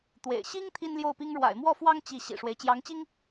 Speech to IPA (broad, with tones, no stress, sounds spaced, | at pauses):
t̪ w ḛ˨˩ ɪ̯ ɕ i˥ ŋ t̪ʰ i˥ n l j o˥˩ ʊ̯ p i˥ ŋ ɻ w a̰˨˩ ɪ̯ m w ɔ˥˩ f w ɑ˥ ŋ t͡ɕ i˥˩ ɕ ḭ˨˩ ʂ w e˦ ɪ̯ t͡ɕ j ɑ˧˥ ŋ t͡ɕ i˥ ŋ